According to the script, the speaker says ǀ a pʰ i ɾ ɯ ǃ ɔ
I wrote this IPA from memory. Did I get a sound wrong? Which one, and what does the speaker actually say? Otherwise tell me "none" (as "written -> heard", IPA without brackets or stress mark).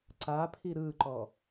none